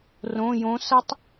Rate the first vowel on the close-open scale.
mid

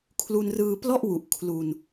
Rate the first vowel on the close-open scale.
close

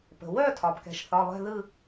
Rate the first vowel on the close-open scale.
mid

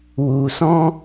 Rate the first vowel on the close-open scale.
close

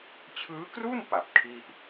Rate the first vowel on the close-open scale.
close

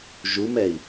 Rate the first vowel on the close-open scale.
close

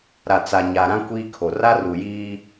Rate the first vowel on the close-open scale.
open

